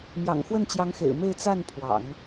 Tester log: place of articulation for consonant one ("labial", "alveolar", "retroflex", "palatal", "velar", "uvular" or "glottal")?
labial